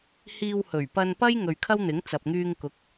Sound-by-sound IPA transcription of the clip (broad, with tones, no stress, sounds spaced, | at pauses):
h iː˧ w h ɵ˨˩ ɥ p ɐ˧ n p ɐ˥ j ŋ ɵ˨ ɥ kʰ ɐ˥ w n̪ ɪ˨˥ ŋ t͡s ɐ˨ p̚ ŋ yː˧ ŋ k ʊ˨˥ k̚